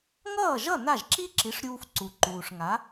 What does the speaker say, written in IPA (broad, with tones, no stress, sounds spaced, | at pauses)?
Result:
ŋ ʌː˥˩ ʒ ʌ˥˩ n a˥˩ ʒ ǁ i˥ ǁ i˩˥ ʂ ɾʲ uː˧ f ǀ u˩ ǃ uː˩ ʂ ŋ a˩˥